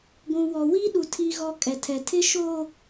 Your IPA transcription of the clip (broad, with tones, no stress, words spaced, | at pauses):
ɡʷũ˨ wɔ˨wiː˦ɗu˨ tʰi˨ɣɔ˨ kʼɛ˨tʰɛ˨tʰɪ˦ ʃoː˨